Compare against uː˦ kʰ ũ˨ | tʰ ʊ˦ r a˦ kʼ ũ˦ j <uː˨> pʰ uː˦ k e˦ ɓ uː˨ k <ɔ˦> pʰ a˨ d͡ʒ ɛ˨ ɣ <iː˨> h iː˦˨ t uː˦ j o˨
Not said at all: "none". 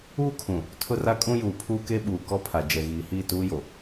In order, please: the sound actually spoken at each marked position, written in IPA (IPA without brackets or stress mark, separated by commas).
uː˨, ɔ˦, iː˨